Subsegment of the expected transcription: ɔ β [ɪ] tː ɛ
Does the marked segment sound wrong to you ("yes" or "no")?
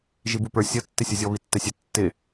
yes